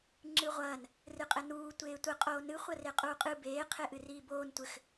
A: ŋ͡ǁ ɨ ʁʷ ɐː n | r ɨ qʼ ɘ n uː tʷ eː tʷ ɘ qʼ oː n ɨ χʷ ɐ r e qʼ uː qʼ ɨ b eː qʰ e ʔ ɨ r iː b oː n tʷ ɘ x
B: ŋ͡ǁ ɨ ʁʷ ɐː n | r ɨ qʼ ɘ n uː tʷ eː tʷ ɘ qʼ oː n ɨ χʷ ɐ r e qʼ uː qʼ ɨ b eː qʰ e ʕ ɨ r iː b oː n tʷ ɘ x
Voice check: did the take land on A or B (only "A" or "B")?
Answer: A